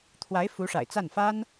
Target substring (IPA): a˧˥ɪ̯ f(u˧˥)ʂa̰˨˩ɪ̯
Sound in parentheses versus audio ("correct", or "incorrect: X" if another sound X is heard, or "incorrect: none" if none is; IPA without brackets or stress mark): correct